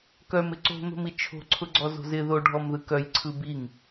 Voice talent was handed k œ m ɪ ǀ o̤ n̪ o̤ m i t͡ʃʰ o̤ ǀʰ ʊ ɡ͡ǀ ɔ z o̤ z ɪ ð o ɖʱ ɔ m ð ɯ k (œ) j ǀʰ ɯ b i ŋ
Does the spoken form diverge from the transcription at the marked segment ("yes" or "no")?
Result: no